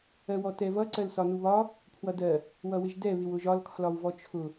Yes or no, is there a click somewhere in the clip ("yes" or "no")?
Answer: yes